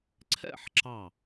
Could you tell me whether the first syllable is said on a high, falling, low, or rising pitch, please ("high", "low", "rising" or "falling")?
falling